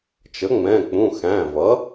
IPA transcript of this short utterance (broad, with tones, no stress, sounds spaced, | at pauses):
t͡ʃ ə˩˥ ŋ͡m ɛ̃˩˧˩ k͡p ũ˩˧˩ x æ̃˩˧˩ v ʌ˩˥